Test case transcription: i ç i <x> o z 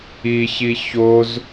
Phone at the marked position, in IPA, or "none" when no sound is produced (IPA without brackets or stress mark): ç